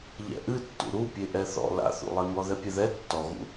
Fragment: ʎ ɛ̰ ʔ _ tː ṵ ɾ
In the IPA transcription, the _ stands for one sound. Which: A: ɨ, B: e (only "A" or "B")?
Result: A